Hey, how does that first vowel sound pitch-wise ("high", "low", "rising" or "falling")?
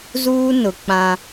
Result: high